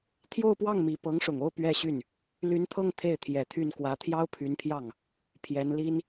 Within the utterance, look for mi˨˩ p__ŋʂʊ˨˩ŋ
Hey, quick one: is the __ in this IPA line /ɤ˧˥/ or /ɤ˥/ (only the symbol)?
ɤ˧˥